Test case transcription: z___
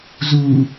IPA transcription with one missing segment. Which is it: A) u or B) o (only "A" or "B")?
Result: A